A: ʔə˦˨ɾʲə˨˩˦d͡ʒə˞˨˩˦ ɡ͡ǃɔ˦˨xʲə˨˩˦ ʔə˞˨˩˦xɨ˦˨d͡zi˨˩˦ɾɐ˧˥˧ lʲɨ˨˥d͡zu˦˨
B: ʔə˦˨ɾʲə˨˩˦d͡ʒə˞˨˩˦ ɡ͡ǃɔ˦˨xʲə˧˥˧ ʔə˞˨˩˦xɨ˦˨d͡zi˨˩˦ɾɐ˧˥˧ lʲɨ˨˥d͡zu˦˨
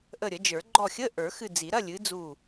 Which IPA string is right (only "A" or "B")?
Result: B